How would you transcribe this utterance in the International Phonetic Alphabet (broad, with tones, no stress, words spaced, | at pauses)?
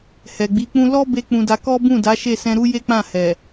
hɛ˨ɡ͡bi˨˦ k͡pũ˧lɔ˦be˧ k͡pũ˧da˧ kɔ˦bũ˦˨da˨˦ʃe˦˨ sɛ̃˧ɾu˦je˦k͡pã˦˨ hɛ˨